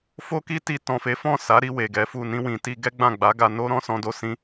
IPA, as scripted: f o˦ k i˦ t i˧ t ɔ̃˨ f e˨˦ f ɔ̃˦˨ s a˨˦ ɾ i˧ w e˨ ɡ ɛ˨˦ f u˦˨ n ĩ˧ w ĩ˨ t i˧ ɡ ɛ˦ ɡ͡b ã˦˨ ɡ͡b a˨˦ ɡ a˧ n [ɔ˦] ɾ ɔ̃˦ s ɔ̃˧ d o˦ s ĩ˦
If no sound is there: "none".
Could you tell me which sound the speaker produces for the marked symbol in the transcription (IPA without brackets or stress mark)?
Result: o˦